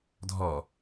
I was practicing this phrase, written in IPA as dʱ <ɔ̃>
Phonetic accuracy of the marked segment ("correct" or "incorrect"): incorrect